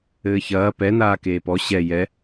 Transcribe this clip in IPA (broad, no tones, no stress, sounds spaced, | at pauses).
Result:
ɘː ç ɐː p ɛ n aː k eː p ɔ ɕ ɛ j ɛ